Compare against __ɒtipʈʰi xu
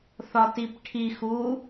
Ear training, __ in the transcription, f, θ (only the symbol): θ